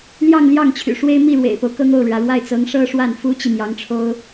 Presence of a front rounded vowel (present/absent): present